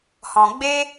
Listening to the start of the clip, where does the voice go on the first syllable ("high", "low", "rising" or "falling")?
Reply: low